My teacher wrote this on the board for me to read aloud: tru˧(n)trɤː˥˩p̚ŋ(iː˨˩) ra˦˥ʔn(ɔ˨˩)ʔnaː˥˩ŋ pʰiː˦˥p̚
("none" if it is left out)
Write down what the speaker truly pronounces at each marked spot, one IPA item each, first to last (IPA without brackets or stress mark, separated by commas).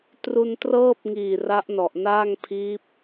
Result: n, iː˨˩, ɔ˨˩